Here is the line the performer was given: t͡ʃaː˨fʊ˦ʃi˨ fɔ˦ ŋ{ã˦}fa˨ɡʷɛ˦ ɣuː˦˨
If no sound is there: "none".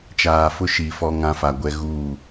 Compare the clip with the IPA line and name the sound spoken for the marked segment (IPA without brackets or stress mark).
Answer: ã˦